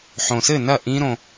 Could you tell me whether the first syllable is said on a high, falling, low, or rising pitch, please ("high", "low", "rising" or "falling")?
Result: low